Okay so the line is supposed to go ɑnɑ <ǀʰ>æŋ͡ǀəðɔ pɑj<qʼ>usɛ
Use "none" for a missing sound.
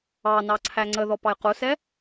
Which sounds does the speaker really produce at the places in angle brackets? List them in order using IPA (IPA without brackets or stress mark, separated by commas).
ǀʰ, q